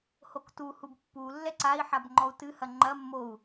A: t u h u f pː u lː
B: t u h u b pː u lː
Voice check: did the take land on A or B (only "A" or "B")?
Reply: B